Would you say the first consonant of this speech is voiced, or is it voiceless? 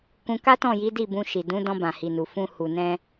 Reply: voiceless